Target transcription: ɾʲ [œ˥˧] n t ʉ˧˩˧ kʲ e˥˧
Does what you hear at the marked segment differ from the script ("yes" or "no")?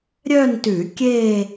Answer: no